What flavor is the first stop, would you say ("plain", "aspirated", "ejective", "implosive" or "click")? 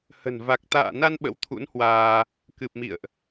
plain